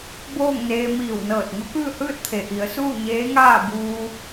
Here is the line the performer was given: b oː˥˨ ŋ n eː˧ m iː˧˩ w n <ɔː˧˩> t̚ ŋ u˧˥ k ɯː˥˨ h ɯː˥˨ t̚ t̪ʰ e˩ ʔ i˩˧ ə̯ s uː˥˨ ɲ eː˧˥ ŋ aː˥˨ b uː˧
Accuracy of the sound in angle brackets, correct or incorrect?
incorrect